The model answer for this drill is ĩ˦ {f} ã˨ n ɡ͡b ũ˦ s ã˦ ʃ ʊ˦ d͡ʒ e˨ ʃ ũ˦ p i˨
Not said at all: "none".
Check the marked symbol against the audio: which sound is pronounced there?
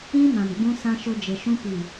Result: m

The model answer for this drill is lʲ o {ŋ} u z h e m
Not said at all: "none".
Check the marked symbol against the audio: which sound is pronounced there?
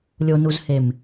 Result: n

